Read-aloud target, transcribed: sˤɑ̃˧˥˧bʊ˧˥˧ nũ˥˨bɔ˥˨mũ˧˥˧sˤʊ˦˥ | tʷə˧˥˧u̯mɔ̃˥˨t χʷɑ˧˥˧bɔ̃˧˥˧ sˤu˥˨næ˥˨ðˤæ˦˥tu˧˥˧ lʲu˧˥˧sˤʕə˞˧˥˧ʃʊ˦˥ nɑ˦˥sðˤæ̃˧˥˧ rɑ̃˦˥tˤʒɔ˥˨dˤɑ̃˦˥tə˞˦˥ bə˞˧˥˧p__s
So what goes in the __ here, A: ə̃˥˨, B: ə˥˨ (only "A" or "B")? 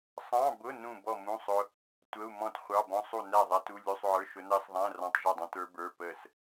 B